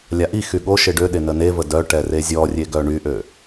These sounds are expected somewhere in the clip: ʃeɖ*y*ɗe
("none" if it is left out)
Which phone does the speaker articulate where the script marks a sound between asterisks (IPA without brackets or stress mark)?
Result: ø